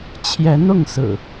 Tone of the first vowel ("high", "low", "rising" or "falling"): rising